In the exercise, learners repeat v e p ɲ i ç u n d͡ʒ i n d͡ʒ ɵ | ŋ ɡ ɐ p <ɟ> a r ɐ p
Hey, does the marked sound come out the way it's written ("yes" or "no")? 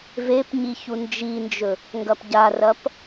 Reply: yes